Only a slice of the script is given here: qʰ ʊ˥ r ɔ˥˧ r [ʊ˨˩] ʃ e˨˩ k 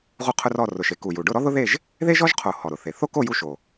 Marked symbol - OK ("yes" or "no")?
yes